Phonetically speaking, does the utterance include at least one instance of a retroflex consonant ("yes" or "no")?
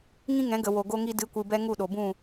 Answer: no